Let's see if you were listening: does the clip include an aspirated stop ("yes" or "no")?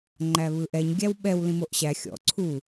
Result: yes